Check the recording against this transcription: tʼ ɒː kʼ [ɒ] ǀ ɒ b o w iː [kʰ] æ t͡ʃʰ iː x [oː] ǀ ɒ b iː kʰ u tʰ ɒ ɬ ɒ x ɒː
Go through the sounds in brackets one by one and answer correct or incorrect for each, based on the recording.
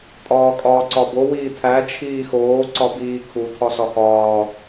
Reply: incorrect, incorrect, correct

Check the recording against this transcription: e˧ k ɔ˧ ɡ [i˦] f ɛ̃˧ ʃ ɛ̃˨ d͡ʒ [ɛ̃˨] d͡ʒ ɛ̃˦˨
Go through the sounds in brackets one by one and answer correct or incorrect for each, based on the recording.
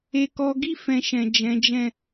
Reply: correct, incorrect

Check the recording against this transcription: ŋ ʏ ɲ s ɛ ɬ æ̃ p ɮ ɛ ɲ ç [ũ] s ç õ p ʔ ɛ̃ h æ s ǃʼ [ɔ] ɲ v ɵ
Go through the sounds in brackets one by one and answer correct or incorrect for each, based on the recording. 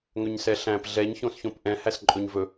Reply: incorrect, incorrect

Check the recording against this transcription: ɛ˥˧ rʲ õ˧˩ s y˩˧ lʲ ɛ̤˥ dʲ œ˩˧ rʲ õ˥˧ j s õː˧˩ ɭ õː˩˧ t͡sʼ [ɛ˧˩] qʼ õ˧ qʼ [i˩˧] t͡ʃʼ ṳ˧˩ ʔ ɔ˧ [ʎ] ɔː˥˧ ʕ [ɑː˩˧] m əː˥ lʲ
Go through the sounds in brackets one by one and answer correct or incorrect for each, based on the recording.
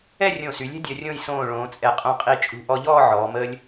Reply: correct, incorrect, correct, incorrect

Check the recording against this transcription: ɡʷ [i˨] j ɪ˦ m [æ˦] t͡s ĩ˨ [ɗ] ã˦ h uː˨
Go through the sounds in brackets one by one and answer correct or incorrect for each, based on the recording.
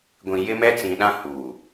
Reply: incorrect, incorrect, correct

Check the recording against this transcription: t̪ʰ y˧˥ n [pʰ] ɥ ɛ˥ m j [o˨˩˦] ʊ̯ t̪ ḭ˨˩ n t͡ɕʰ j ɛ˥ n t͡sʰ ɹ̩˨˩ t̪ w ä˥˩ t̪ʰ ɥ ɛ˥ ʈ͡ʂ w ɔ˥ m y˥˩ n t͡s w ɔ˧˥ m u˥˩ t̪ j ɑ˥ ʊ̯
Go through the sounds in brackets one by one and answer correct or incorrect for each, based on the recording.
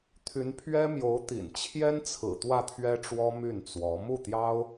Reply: correct, incorrect

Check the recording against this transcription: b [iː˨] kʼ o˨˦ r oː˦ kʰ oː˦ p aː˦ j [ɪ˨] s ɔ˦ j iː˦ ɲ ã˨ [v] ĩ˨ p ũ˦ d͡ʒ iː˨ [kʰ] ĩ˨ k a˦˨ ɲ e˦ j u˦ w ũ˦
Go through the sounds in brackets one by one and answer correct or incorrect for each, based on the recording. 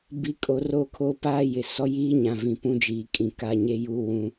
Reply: incorrect, correct, correct, incorrect

